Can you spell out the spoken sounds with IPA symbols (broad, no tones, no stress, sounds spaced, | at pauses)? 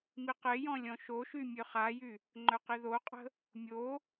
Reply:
m i q e j ɔ̃ lʲ ɔ̃ ʃ o ʃ y mʲ ø χ a j y | ŋ͡ǃ œ q i ð o qʼ ə̤ | mʲ o